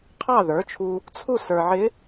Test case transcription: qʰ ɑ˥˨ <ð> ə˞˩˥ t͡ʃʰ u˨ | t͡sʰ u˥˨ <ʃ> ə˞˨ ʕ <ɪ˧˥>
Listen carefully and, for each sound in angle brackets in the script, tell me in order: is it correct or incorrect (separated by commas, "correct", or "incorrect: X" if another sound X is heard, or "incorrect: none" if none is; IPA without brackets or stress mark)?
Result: correct, incorrect: s, correct